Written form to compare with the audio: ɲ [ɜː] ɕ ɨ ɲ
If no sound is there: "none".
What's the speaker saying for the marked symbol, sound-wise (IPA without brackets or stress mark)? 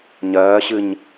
ɜː